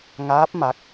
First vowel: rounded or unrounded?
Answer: unrounded